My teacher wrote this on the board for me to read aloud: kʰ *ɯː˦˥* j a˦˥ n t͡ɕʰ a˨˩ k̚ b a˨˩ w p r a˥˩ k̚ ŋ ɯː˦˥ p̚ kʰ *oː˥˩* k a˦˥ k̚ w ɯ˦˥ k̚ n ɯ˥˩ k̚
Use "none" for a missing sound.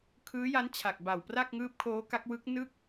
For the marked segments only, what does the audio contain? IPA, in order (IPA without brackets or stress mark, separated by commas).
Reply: ɯː˦˥, oː˦˥